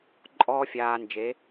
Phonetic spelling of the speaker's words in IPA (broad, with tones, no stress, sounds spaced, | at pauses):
ǃʼ ɔː˧ fʲ aː˧ n d͡ʒ e˨˦